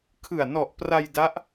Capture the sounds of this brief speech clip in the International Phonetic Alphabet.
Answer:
kʰ ɯ˨˩ a̯ n ɔ˨˩ ʔ p r a˧ j d a˦˥ ʔ

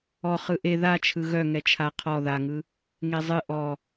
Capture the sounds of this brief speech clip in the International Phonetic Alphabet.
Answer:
ɔ χ ɯ ʔ e ð a t͡ʃʰ ɯ ɣ œ ŋ ɛ t͡ʃʰ a qʰ ɔ ð a ŋ ɯ | ŋ e zˤ ɨ ʔ ɔ

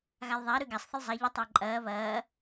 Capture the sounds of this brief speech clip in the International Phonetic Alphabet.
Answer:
ɣ a lˠ ðˤ æ ɾ ʉ ɡ a sˤ θ ə lˠ zˤ a ʎ ə tˤ æ ǃʼ ɐː β ɐː

